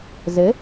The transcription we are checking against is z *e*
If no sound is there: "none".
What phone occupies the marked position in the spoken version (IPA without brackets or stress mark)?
ɘ